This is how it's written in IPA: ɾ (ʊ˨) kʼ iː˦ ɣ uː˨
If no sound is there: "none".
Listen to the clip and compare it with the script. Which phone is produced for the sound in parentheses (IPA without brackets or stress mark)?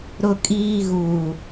ʊ˦